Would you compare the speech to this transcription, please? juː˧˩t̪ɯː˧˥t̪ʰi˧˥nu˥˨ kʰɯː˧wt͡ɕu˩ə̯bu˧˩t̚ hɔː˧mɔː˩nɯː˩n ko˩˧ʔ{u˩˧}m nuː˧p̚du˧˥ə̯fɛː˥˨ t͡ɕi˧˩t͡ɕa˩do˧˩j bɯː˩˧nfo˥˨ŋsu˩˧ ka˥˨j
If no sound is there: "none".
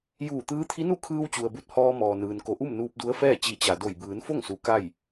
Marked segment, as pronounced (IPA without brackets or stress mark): u˥˨